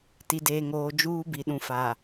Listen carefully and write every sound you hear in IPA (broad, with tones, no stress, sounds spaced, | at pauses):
t i˨ d eː˨ ŋ oː˨ d͡ʒ uː˦ b i˨ ɗ ũ˨ f a˨